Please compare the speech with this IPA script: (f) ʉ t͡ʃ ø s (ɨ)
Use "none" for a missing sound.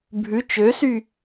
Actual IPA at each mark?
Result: bʱ, y

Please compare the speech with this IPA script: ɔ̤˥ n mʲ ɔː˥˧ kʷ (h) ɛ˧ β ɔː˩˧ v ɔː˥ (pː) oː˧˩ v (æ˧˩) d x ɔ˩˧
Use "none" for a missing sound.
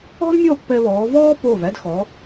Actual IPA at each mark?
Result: p, p, æ˥˧

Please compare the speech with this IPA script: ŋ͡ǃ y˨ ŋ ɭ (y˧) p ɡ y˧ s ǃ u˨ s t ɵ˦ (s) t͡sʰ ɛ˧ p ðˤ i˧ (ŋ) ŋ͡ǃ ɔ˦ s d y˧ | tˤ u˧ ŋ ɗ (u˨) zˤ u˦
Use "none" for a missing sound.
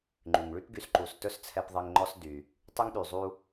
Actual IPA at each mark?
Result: y˦, s, ŋ, y˨

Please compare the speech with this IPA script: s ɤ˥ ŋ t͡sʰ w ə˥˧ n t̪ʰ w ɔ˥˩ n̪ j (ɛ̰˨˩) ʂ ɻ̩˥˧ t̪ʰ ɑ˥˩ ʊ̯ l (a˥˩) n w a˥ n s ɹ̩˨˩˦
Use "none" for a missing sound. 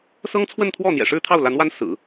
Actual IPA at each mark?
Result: ɛ̰˨˩, a˧˥

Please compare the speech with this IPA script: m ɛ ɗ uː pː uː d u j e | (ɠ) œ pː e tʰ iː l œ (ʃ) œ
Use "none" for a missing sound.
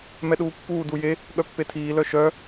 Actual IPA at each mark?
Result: ɠ, ʃ

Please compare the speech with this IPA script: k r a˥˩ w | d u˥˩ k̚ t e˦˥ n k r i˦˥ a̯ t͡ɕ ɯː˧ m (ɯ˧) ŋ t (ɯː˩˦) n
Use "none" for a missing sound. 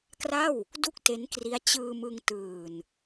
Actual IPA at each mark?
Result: ɯ˧, ɯː˨˩

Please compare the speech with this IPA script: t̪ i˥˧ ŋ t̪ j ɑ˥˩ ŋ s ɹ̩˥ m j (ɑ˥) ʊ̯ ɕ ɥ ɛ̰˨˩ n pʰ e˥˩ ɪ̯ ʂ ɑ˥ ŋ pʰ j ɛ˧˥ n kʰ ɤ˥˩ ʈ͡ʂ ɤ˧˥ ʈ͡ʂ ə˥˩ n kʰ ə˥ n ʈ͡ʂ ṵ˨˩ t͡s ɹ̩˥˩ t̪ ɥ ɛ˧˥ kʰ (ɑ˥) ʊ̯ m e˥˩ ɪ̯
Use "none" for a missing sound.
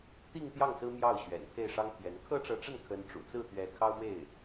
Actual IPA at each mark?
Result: ɑ˥˩, ɑ˥

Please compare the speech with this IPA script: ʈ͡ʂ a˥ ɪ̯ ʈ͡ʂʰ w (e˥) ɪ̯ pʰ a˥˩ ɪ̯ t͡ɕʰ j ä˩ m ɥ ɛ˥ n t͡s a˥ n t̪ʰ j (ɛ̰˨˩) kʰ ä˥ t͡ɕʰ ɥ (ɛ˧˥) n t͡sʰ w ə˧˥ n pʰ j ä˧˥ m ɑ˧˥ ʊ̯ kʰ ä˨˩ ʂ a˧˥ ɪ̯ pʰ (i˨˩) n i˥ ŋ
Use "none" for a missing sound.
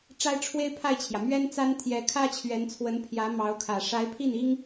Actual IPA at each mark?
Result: e˥, ɛ˧˥, ɛ˧˥, i˥˩

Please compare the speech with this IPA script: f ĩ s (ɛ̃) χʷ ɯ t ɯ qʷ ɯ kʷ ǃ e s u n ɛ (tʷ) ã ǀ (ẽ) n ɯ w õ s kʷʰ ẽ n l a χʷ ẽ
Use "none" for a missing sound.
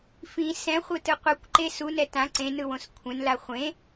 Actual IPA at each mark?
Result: ɛ̃, t, ẽ

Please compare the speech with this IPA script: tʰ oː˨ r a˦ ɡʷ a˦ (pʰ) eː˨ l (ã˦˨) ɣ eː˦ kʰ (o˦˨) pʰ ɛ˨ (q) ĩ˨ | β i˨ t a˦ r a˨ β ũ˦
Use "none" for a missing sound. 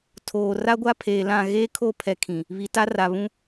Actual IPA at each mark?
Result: pʰ, ã˦˨, o˦˨, kʰ

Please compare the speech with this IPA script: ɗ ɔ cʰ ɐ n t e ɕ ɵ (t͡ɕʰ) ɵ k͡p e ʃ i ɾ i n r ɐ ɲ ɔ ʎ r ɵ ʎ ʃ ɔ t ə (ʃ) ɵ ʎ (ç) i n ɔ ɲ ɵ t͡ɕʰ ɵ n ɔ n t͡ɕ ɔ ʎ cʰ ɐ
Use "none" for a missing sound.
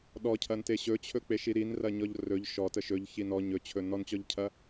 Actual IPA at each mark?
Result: t͡ɕʰ, ʃ, ç

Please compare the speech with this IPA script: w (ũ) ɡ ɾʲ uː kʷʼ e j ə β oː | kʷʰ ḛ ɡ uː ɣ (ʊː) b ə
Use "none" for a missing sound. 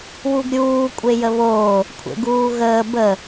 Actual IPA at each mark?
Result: u, əː

